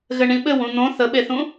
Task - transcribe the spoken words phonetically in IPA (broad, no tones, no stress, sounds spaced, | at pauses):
ɣ ɘ ɳ ĩ ɓ ɘ w ũ n̪ õ θ ə ɓ e θ ũ